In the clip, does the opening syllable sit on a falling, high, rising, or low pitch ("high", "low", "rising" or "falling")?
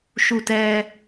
low